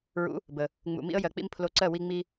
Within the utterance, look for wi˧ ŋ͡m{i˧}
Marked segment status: correct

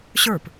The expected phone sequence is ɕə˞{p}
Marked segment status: correct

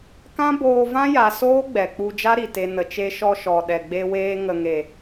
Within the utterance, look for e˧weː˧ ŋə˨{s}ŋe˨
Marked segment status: incorrect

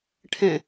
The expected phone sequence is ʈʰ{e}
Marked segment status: incorrect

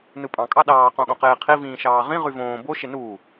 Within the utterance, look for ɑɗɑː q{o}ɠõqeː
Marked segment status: incorrect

